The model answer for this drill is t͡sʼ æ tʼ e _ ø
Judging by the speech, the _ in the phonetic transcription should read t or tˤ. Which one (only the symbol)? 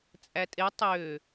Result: tˤ